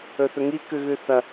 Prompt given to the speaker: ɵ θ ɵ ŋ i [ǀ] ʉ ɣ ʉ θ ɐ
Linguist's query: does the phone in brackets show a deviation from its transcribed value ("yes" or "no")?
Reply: yes